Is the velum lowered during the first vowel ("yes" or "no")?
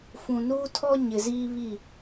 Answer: yes